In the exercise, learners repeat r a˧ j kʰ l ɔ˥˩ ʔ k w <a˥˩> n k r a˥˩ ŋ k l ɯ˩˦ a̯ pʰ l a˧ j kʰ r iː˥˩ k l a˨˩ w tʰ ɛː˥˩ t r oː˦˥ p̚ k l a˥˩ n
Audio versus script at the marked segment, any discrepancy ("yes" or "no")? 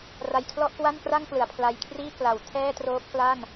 no